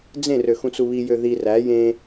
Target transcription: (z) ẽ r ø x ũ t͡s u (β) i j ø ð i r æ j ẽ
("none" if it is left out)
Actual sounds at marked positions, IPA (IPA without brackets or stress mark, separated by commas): d͡z, β